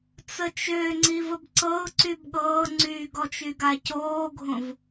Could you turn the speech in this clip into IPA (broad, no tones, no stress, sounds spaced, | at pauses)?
t͡s ə t͡ʃ ø ŋ͡ǀ i v ə b ǀ ɤ ʊ̯ ǀ y b ɠ ɤː ŋ͡ǀ y ɡ ɔ t͡ʃ y ɡ a c oː ɡʱ õ v